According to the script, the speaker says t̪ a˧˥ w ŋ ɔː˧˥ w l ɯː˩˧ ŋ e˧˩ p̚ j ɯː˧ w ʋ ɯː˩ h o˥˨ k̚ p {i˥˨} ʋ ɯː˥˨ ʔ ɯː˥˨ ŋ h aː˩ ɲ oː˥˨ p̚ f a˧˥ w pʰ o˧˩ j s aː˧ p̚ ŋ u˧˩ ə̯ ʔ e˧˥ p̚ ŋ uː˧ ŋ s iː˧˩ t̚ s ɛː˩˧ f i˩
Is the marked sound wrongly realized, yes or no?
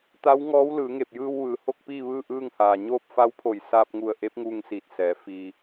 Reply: yes